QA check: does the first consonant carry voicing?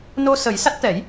yes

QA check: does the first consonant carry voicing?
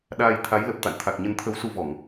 yes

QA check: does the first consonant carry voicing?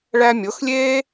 yes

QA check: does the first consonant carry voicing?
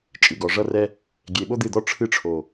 no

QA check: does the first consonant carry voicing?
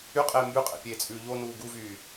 no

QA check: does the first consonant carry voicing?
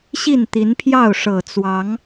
no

